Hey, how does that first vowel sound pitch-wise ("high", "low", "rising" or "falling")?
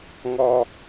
high